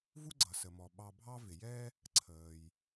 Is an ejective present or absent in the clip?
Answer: absent